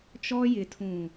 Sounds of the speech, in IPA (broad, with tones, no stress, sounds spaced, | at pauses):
t͡ʃ ɔ˦ j ɪ˨ tʰ ũ˨